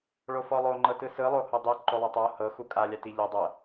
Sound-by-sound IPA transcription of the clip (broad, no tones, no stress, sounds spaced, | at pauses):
ɭ o f ɔ lˠ o ŋ͡ǃ ɤ t ɯ s ɯ lˠ o h o dˤ i ǃ o lˠ e tˤ o h ɤ x u kʼ a lʲ a t i ʎ i dˤ ɤ